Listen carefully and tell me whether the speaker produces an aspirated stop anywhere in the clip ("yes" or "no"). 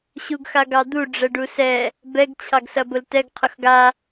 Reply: yes